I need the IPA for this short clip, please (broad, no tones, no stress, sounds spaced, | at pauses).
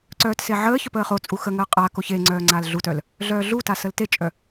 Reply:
ǀ œː t s e ʕ əː ç œ p əː χ o t͡sʼ u x ə ŋ əː qʼ a k o ç e ŋ͡ǀ œː ŋ͡ǀ aː l ɮ u t œ l | ɮ œː ɮ u t a s ə l t e t͡ʃʼ œ